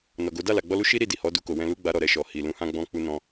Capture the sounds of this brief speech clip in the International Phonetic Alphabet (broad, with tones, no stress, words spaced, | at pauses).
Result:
nɔ˨ɡo˨˦ da˦˨la˨ɡ͡bɔ˧lu˦ ʃi˦ ɾi˦˨di˨hɔ˨˦ du˧ko˨wɛ̃˧ lu˦ɡ͡ba˧ɾɔ˨ɾɛ˧ ʃɔ˨hi˨ lũ˨˦hã˧ɡ͡bɔ̃˧ k͡pu˧nɔ̃˧